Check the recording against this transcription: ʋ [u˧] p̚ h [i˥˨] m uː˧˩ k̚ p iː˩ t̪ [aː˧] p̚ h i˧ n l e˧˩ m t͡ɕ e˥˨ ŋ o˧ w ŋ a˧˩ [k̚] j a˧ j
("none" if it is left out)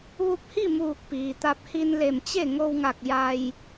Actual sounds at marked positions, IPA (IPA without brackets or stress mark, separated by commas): u˧, i˥˨, a˧, k̚